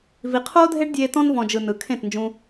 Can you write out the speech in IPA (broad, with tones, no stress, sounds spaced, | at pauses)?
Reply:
v i˧ qʰ oː˦ dʱ e˦ ɖ dʲ eː˧ t ɔ̃˧ n v ɔ̃˨ d͡ʒ ɯ˨ n ɯ˨ kʰ ẽ˦˨ t n d͡ʒ ũ˧